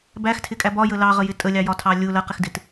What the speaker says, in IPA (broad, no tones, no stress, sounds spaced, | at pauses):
b æ x tʰ ɪ kʼ æ b ɒ j ə l ɑ ʁ ə j ɪ tʼ ə lʲ ɑ j ɒ tʰ ɑ lʲ ʊ l ɜ q ɪ x d ɪ t